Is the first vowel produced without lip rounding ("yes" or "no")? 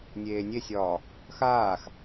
yes